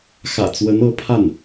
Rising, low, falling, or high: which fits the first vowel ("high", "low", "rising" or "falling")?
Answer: low